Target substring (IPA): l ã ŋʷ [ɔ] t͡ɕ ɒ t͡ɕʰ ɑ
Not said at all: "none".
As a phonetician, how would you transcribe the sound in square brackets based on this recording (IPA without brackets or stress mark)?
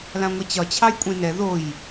ʌ